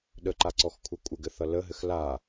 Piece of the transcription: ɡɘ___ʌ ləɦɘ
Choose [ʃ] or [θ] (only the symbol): θ